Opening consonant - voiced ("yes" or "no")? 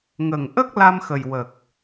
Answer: yes